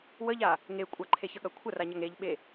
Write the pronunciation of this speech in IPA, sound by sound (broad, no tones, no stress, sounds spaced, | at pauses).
w ə ʎ a | ŋ e kʷʼ ɐ ǃʰ e ç ə ɠ ɐ kʷʰ ə r a ɲ ɐ ŋ e ʎ ɓ e